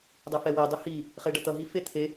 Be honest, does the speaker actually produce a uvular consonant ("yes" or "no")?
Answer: yes